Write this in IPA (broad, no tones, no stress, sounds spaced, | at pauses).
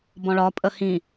b ɔ̃ ɭ ɒ pʼ ə h ĩ